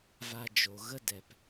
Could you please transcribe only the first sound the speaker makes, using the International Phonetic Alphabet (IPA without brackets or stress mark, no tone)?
v